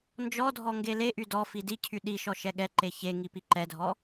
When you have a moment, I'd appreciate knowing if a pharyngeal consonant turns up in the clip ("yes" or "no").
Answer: no